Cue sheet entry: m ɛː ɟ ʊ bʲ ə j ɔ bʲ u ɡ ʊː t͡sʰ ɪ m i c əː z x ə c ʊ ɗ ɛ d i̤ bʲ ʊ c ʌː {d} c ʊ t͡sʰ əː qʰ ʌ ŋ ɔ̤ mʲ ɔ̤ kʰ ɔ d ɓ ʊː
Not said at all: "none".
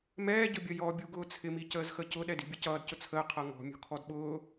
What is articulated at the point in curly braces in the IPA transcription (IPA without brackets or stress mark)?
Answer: d